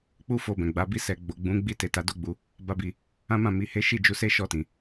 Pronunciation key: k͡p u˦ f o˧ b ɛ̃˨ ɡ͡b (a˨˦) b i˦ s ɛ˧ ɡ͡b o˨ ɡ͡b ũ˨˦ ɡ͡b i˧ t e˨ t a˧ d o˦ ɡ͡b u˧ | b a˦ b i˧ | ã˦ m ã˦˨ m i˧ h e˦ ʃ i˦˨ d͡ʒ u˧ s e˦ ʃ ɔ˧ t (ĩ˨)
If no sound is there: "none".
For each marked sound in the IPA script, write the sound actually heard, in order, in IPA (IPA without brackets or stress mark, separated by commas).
a˨˦, ĩ˨